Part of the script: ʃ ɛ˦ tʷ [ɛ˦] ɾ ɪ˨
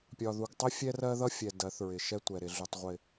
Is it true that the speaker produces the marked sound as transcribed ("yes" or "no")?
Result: no